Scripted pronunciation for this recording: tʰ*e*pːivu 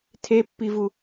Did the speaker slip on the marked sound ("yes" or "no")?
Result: no